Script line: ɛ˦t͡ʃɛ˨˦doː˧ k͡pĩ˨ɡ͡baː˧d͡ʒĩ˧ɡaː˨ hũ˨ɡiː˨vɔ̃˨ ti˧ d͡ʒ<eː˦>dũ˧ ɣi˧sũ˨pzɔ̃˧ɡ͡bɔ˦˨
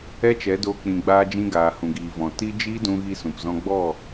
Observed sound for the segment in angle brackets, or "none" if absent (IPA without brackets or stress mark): iː˦